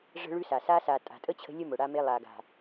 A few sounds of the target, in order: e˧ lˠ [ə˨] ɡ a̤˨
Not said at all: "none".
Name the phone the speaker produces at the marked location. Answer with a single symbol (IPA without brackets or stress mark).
a˨